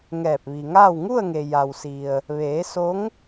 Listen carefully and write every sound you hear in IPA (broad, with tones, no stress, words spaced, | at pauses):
ŋɛː˧˩p̚ʋi˩ ŋaː˥˨w ŋu˥˨ə̯ŋe˩ ja˩wsi˩ə̯ | ʋeː˩˧ so˧˥ŋ